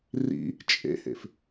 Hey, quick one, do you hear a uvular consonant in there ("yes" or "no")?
no